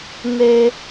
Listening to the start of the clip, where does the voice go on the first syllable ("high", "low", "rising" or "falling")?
low